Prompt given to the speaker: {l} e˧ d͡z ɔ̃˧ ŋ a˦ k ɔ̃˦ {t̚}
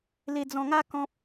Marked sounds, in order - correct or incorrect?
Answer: correct, incorrect: p̚

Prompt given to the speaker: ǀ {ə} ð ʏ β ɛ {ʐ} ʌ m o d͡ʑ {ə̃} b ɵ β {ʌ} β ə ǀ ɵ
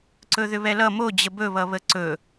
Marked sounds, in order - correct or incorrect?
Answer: incorrect: ɵ, incorrect: l, incorrect: ə, correct

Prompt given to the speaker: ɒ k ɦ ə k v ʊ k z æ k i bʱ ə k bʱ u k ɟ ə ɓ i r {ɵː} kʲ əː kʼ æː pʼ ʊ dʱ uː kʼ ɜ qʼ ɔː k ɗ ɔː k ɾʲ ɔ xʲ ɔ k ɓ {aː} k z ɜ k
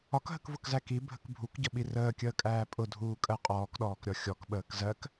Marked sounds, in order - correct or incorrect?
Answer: incorrect: əː, incorrect: əː

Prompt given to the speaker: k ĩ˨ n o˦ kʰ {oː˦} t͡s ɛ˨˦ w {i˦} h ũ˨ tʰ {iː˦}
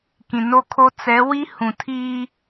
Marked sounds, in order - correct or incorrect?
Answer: incorrect: o˦, correct, correct

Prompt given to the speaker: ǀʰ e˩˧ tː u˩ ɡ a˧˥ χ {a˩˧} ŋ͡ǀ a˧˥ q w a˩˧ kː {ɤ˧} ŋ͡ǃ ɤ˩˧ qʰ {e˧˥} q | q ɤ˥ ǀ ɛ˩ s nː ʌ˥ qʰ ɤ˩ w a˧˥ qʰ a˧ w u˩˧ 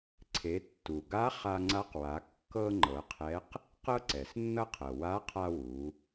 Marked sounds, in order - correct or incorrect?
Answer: incorrect: a˧, correct, incorrect: ɛ˧˥

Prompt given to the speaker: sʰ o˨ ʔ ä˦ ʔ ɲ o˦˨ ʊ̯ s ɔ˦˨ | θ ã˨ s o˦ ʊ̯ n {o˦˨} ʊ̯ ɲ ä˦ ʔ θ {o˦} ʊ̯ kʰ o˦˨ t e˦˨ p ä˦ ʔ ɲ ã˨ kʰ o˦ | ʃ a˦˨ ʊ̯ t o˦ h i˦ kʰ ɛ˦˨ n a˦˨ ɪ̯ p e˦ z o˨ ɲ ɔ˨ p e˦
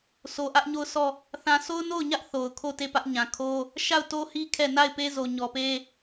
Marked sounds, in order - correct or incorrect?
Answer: correct, incorrect: o˨

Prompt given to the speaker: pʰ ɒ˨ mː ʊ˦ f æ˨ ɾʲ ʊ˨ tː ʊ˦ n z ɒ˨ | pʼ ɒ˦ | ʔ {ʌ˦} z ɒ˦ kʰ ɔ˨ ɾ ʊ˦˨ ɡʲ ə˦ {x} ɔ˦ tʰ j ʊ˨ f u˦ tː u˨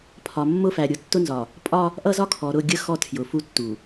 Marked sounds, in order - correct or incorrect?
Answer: correct, correct

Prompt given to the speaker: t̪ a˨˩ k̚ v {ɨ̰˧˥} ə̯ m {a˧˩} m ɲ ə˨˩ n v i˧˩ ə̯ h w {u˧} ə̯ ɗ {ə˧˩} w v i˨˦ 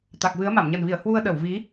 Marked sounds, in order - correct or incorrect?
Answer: incorrect: ɨ˨˦, correct, correct, correct

